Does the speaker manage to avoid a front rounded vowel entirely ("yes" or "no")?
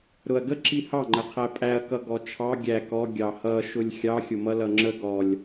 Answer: yes